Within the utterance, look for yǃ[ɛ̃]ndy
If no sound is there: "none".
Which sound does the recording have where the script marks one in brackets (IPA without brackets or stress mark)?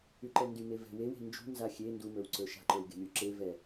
ɛ